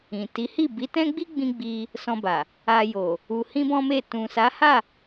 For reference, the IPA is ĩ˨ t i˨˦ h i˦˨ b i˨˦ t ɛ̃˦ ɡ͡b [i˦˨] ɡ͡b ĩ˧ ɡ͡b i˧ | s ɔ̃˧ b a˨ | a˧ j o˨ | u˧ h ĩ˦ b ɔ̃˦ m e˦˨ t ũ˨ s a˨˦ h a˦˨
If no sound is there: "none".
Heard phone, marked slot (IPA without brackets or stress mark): i˦